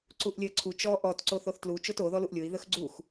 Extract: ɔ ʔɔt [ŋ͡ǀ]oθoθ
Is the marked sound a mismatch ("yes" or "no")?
yes